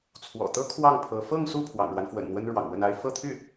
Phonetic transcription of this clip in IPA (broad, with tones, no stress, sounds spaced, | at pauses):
t͡sʰ w ɔ̰˨˩ t̪ ɤ˥ kʰ w ɑ˥˩ ŋ pʰ ɤ˧˥ f ɤ˥˧ ŋ s u˥˩ pʰ w ɑ̰˨˩ ŋ ɻ w a˦ n f w ə̰˨˩ n n̪ w ə˥ n ɻ w ɑ̰˨˩ ŋ w ə˥˩ n a˥ ɪ̯ f ɤ˥˧ t̪ʰ y˥˩